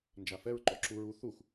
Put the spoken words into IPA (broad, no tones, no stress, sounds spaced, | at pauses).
n d͡ʒ a f ɛ ɹ ǃ ɔ ǁ u ɹ u θ u x